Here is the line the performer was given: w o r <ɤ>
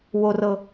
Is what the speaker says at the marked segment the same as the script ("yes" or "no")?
yes